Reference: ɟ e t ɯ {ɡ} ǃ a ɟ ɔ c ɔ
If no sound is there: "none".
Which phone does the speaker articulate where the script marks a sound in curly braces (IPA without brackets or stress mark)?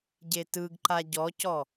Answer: ɡ